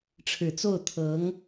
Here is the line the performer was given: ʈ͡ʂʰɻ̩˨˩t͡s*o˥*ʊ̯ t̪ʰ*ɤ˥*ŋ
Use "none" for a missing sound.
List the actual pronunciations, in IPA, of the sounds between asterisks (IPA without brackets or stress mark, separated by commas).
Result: o˥˩, ɤ˧˥